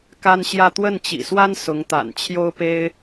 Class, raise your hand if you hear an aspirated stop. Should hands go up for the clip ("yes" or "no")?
yes